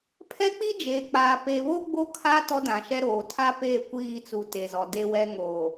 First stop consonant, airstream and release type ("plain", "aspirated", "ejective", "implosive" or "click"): aspirated